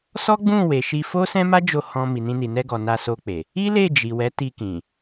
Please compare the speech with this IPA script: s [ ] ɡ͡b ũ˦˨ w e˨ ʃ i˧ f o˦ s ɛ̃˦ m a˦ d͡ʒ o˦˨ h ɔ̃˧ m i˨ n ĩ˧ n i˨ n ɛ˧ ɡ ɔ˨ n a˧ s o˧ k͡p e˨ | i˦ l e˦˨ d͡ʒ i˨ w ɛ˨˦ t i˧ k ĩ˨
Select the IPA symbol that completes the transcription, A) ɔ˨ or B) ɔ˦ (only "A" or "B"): B